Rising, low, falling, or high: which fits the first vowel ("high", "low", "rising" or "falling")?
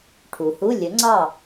low